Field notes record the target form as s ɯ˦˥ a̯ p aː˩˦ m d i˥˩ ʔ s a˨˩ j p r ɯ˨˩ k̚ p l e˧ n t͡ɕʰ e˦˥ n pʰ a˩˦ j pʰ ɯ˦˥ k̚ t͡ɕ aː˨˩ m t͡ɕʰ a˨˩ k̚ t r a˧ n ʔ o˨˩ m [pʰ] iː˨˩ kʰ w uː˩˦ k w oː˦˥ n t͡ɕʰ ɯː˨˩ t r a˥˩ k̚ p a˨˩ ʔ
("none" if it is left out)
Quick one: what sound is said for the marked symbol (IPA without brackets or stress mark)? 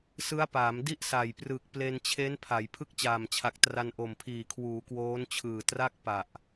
pʰ